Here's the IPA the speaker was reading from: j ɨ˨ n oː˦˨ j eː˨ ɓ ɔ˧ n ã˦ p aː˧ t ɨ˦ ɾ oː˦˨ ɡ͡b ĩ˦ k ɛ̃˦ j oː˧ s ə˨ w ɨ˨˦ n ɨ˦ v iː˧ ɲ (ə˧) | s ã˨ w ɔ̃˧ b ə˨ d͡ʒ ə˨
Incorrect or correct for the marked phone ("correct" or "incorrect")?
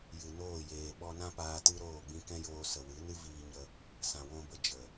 correct